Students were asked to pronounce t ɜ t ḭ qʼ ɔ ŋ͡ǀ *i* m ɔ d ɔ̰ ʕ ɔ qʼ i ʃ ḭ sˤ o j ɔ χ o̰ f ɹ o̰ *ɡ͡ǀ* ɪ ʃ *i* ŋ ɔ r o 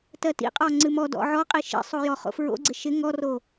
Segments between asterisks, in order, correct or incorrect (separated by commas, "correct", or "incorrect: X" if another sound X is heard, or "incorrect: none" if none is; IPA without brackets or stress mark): incorrect: ɨ, correct, incorrect: ɪ